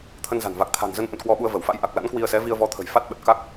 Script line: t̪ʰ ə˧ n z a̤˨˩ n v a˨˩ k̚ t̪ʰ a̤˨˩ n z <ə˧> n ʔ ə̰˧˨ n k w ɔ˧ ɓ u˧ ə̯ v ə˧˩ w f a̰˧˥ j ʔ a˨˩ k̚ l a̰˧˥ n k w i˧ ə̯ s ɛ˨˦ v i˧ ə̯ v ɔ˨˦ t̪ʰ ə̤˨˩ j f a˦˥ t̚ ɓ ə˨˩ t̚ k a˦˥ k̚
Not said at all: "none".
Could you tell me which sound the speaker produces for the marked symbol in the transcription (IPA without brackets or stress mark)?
ə˧